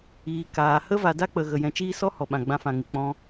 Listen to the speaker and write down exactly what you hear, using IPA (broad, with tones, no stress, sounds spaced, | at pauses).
iː˨ k aː˨ h ə˦ v a˨ d a˦ k͡p ə˨ ɣ ə˨ j ɛ̃˧ t͡ʃ iː˦ s ɔ˦ h ɔ˨ ɓ ã˨ ɡ͡b ã˧ f ã˨ ŋ ɨ˨ k͡p ɔ̃˧